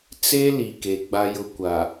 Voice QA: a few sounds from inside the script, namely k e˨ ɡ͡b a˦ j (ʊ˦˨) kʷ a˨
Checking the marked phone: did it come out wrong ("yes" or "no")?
yes